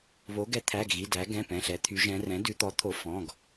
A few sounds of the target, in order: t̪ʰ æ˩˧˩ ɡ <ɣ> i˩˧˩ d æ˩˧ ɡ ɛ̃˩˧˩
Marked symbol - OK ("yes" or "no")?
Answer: yes